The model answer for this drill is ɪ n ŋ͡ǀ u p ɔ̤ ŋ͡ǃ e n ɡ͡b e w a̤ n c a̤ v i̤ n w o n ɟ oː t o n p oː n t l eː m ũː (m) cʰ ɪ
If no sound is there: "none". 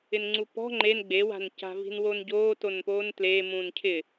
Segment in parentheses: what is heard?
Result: n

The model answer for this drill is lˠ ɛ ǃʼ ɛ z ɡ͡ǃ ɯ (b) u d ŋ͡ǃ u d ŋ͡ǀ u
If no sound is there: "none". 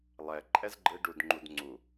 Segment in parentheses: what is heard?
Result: ɖ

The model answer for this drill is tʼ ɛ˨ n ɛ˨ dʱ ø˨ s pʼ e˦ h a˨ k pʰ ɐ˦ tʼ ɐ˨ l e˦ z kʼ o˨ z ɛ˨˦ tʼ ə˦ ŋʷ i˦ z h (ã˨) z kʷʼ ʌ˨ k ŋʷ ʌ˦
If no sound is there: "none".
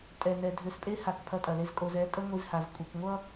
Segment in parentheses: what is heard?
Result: a˨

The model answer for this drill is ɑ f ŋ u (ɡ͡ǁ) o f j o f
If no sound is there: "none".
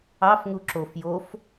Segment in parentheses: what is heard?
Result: ǁ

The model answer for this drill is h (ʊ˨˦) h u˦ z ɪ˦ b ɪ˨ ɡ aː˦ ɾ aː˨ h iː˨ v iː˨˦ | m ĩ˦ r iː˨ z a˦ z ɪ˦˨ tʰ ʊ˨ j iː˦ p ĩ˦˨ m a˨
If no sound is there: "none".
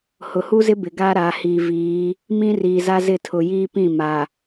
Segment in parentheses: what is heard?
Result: ʊ˨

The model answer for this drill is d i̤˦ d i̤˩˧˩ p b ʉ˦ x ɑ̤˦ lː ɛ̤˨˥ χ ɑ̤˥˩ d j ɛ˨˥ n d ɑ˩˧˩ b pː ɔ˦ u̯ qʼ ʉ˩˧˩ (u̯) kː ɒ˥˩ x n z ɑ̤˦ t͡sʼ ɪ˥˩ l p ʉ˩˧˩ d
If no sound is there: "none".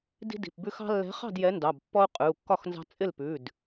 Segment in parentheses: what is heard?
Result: u̯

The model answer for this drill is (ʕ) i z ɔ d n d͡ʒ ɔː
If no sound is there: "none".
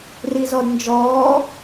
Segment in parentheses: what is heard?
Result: r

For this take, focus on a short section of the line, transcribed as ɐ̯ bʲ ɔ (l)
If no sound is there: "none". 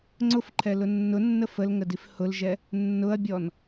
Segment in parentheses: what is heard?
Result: n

